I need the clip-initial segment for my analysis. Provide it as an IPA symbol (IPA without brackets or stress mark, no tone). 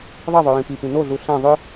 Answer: ðˤ